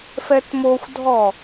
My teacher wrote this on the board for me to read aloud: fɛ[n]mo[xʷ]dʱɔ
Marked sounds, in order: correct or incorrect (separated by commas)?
incorrect, correct